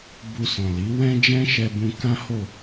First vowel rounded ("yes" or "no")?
yes